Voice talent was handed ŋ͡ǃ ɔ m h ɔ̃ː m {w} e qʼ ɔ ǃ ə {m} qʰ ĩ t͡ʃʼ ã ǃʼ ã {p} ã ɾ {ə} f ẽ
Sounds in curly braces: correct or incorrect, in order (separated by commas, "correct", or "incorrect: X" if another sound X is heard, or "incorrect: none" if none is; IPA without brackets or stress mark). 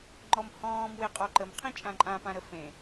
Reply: correct, correct, correct, correct